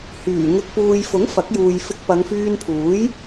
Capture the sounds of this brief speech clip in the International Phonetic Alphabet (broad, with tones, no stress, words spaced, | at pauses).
hyː˨˩ ŋɪ˨k̚puː˨jfʊ˨˥ŋ fɐ˨˥k̚juː˨j fɪ˧k̚pɐ˨˧ŋfyː˧npʰuː˨˥j